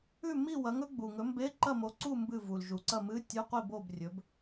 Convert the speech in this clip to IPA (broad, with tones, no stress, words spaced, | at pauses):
ʉ˥˨mi˥˨ wɐ˨˥ŋɵ˨˥ɡ͡bu˨˩ŋɵ˨˥ mbe˧˥˧ǃɐ˥˨mo˨˥ǀu˥˨ mbɨ˥˨vu˨˩lʒu˨˩ ǀɐ˥˨mɨ˧˥˧ tʲʉ˧˥˧qʷi˥˨ bo˥˨b rʲɵ˨˥b